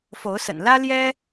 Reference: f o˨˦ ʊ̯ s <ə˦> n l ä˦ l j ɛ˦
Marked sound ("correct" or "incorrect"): incorrect